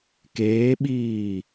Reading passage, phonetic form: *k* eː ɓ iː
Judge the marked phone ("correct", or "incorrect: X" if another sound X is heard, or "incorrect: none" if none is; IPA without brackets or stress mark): correct